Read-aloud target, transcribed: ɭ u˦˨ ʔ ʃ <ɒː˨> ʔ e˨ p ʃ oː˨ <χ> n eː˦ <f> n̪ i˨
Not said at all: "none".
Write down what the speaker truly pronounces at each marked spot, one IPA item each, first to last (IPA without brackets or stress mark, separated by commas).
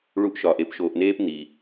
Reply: ɒː˨, ʔ, p